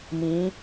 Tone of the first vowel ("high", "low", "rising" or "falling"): rising